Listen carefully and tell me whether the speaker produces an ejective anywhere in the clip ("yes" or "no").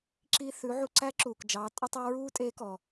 yes